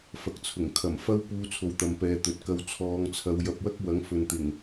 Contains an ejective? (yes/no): no